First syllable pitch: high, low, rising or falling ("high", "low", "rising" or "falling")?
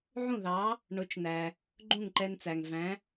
falling